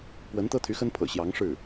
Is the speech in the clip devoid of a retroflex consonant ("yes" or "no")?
no